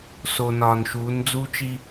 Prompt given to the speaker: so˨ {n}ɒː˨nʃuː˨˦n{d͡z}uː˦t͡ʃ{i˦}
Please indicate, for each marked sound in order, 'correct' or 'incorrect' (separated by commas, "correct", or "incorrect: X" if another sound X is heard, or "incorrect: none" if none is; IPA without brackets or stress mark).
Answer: correct, correct, correct